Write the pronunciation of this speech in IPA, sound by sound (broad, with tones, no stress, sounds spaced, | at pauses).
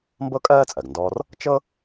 m b ɤ˥ kʼ ɜː˥ t͡sʼ ɜ˩ ɡ n d ɔː˧ r | t͡ʃ ɤ˥